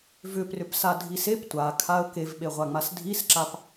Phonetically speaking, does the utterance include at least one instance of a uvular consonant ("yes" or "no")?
yes